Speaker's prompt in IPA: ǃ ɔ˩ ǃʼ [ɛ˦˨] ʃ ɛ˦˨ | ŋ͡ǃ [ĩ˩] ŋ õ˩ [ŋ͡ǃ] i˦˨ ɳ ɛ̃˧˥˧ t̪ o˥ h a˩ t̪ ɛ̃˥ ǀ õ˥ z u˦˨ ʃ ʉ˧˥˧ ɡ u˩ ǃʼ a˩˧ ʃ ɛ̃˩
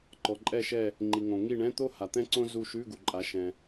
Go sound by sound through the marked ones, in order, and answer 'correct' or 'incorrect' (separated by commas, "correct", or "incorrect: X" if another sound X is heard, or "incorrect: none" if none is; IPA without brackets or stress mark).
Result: correct, incorrect: i˩, incorrect: ŋ